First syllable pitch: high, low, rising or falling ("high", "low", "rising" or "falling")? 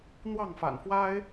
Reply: falling